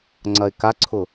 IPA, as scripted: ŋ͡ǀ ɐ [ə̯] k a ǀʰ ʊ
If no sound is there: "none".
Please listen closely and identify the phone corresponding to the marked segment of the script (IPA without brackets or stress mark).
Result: ɪ̯